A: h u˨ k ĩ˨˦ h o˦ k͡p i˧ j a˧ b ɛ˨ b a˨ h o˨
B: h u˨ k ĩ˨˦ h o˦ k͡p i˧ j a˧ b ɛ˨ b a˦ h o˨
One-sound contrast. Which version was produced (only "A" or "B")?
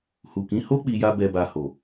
A